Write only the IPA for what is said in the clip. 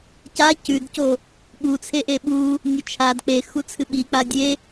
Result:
ca cʉdco | ɠut͡sʰeʔe ɓu | nʲot͡ʃʰad k͡pe xut͡sʰɨɓik͡pa dʲe

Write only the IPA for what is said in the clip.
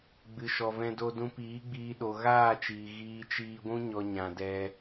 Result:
ɡ͡bɨ˨ʃɔ˨vɛ̃˧do˧ dũ˧piː˨˦ɡ͡biː˧ ɗo˨ɣaː˦˨t͡ʃiː˨ ɣiː˧t͡ʃiː˧ɡʷũ˦ ɲɔ˧ɲã˨ dɛ˧

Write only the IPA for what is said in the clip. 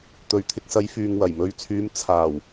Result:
t̪ɵ˨ɥt̪ʰɪ˨˥k̚sɐ˨˧j fyː˨ŋwɐ˨˩jmɵ˨˧ɥt͡sʰyː˨˧m t͡sʰaː˨˩w

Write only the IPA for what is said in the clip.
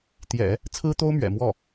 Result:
t̪jɛ̰˨˩˦ | t͡sʰɹ̩˥t̪o˥ʊ̯ mɥɛ̰˨˩mwɔ˥˩

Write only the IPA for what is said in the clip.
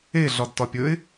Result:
e ɮɒdtɒpʲɵɪ̯

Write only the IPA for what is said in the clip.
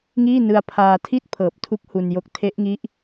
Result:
ŋiː˥˩ nɯ˧a̯pʰaː˧ tʰi˥˩t̚pʰɤː˨˩p̚tʰu˦˥k̚ hu˧njo˦˥k̚ tʰe˦˥ʔŋi˦˥ʔ

